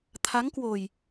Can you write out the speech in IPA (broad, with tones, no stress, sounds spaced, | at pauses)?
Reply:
t̪ʰ a˨˦ ŋ k w o˨˩ j